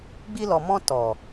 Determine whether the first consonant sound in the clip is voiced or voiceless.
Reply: voiced